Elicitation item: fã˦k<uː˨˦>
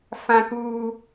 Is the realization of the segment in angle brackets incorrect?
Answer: yes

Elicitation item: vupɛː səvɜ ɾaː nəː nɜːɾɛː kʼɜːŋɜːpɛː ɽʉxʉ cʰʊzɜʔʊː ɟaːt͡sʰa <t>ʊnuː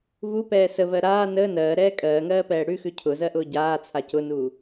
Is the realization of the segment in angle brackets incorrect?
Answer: yes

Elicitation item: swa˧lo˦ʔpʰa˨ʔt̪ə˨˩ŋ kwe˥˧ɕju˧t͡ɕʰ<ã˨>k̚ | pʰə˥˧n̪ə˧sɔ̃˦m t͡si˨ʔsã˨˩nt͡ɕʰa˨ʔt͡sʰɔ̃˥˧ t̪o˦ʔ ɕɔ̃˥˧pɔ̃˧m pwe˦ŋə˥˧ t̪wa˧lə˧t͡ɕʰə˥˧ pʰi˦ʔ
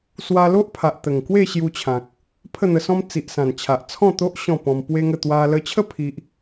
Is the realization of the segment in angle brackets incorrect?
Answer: no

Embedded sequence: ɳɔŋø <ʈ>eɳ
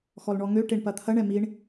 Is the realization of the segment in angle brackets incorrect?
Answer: no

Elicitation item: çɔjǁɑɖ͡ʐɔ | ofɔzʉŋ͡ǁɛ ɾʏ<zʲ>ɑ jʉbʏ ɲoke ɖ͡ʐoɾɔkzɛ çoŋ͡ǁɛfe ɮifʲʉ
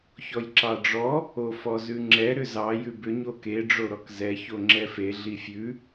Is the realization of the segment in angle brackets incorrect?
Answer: yes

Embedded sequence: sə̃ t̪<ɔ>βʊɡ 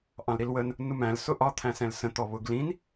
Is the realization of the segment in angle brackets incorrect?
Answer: no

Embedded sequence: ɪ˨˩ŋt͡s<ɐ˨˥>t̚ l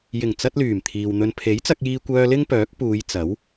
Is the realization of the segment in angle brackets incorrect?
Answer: yes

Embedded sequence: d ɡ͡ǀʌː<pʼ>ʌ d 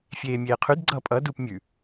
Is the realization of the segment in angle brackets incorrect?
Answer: no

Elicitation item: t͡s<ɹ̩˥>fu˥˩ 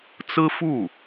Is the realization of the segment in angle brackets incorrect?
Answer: no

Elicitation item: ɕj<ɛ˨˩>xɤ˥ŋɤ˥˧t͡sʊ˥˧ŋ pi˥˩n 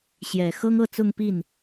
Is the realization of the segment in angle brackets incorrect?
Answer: no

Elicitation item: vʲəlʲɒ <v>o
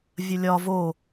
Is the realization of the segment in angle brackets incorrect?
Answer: no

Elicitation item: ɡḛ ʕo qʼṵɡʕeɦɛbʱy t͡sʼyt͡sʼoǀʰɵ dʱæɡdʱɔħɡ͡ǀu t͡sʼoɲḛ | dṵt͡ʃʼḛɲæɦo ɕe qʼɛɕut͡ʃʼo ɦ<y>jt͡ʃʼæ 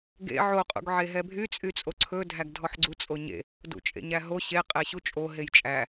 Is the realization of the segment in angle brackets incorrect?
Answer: yes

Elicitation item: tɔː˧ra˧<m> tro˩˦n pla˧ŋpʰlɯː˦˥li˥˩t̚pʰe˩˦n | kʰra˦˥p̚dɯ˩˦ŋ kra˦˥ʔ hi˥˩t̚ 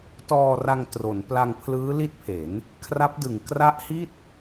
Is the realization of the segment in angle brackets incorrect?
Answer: yes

